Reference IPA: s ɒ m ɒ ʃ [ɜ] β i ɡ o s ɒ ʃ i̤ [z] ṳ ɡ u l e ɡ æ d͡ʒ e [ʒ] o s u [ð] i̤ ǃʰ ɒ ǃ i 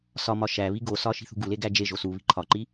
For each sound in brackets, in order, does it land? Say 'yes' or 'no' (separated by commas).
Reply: no, no, yes, no